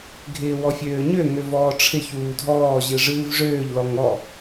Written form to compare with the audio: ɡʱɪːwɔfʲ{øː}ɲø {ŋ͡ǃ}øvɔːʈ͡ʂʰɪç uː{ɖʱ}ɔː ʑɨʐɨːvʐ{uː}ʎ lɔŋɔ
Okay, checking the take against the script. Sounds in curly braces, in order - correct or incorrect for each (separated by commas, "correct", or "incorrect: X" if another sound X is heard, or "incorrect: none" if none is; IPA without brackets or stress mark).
correct, incorrect: ŋ, incorrect: dʱ, incorrect: øː